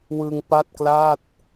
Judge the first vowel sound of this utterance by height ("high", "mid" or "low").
high